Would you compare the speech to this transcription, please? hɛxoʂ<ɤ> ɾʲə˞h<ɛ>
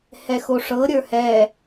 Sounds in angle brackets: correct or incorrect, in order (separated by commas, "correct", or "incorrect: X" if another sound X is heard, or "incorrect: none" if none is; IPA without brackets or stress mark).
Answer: correct, correct